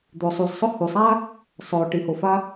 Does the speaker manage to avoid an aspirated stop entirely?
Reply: yes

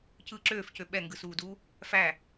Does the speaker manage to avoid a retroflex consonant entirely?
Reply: yes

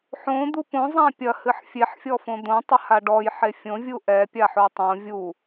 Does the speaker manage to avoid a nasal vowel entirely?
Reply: no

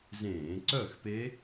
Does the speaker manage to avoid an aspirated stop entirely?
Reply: yes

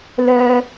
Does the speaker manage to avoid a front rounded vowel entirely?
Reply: no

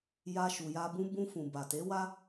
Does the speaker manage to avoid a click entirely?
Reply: yes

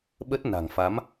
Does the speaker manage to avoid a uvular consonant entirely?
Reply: yes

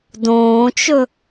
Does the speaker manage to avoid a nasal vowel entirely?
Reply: no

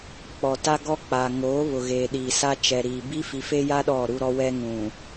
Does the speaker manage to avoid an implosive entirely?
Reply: no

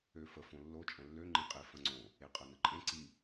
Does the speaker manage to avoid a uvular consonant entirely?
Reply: no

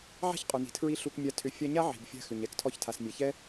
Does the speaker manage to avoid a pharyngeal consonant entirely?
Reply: no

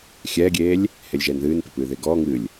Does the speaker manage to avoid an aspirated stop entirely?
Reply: yes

